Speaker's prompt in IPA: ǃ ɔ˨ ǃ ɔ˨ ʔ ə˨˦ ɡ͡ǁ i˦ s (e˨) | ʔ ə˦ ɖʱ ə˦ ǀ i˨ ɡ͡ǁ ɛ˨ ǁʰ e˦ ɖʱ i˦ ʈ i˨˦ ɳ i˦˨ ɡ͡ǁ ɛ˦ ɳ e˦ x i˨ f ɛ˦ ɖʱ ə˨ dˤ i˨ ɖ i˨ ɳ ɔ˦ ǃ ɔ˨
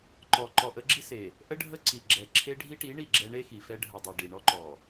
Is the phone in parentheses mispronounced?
no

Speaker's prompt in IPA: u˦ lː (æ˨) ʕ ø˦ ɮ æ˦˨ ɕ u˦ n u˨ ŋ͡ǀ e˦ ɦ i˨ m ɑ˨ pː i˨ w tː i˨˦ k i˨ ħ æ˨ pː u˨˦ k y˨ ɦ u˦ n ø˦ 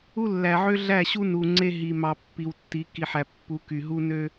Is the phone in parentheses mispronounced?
no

